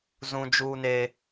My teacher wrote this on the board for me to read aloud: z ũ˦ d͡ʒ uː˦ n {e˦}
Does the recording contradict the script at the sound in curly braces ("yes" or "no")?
yes